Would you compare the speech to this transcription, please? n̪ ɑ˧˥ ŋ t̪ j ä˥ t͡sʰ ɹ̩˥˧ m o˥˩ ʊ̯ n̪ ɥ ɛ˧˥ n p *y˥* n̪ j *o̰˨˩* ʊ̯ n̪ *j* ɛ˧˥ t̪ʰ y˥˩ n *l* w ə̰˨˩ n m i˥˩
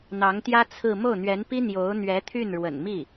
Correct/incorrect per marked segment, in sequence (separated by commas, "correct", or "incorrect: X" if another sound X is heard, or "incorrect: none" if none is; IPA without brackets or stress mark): incorrect: i˥, incorrect: o˧˥, incorrect: ɥ, incorrect: ɻ